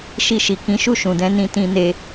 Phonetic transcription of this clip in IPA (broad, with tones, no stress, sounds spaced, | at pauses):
ʃ i˧ ʃ i˨ k ĩ˨˦ ʃ u˦˨ ʃ ũ˨ d ɛ̃˧ n ĩ˧ t ĩ˧ n e˧